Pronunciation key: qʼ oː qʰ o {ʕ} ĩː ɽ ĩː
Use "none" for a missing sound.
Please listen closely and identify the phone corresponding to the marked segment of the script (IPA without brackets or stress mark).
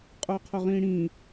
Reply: ʁ